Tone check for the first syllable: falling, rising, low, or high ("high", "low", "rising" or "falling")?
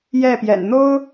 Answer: falling